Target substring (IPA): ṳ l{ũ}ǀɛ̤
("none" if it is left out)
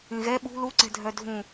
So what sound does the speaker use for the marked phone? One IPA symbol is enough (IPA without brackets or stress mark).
u